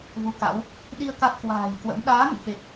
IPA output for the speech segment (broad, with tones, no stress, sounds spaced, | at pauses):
v u˨˦ k a̰˧˥ w | ɗ i˧ ə̯ k a˦˥ t̚ k w a̤ː˨˩ j k w ə̰˧˥ m ɗ aː˨˦ ŋ ə̰˧˨ n f e˨˩ k̚